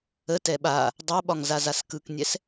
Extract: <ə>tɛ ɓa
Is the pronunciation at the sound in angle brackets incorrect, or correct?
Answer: correct